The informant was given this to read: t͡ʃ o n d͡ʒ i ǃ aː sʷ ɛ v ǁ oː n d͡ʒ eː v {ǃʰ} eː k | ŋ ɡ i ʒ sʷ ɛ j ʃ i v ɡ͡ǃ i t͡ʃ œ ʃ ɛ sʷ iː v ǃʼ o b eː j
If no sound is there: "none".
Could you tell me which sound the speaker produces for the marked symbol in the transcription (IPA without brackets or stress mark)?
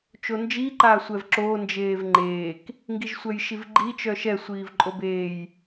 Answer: ŋ͡ǃ